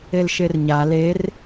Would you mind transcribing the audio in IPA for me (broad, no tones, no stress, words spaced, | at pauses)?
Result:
elʃerɲa ler